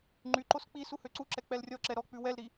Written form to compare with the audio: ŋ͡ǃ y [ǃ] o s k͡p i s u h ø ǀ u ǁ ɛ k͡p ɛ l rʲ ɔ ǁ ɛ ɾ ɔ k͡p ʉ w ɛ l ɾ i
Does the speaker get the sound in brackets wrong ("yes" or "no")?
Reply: no